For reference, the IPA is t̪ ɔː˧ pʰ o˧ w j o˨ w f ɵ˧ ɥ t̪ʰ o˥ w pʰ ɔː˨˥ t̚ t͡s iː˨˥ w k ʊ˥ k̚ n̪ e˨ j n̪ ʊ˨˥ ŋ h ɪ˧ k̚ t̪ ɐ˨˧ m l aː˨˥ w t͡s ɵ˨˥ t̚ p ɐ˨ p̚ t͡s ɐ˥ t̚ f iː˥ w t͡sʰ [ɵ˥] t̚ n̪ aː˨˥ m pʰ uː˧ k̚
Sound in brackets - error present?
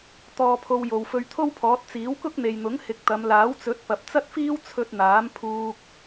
yes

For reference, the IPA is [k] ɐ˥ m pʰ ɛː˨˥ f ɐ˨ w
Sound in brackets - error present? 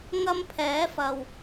yes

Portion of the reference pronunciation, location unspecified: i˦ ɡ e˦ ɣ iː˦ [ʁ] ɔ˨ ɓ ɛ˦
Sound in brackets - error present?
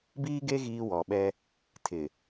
yes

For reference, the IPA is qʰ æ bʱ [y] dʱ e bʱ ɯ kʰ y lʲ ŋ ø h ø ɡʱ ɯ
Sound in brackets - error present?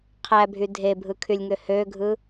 no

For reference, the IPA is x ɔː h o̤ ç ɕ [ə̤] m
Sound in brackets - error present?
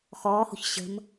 no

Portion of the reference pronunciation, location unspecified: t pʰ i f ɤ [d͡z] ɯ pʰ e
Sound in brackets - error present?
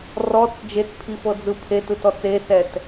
no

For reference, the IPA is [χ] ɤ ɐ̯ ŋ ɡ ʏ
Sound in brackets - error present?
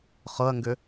no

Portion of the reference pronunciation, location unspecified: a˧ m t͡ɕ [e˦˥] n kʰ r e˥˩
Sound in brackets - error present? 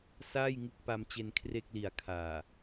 yes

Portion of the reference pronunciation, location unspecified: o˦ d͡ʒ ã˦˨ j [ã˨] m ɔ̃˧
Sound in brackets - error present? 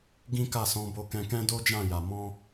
yes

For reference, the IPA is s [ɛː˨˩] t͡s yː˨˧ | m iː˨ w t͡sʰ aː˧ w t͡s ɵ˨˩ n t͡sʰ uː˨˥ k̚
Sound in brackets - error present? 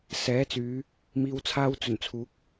yes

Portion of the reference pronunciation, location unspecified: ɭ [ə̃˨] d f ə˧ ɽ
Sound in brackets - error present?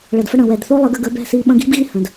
yes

